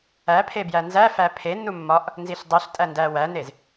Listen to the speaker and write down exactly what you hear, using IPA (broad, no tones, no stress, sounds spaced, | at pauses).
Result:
æ pʰ e b j æ n z æ f æ pʰ e nː u mː ɒ ʔ | n z i ɬ dˤ o ɬ tʼ æ n d æ w æ n e z